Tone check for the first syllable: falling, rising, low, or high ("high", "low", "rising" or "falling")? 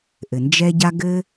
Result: low